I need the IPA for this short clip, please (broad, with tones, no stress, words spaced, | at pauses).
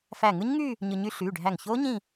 fæ˧˩ŋɯ˦˥ɲŋy˥˧ | ɲɯ˧ɲy˦˥ ɬyː˩˧˩ɖʱæ˧˩ŋçoː˦˥ ɲĩ˥˧